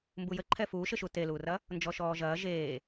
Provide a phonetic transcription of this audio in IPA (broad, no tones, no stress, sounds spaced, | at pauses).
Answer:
m b u j ə ǃʰ ɛ f uː ʃ ɘ ʃ u t e l uː r ɐ | n d͡ʒ ɔ ʃ ɔː ʒ ɐː ʒ eː